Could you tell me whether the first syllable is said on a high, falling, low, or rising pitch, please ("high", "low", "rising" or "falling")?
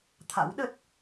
rising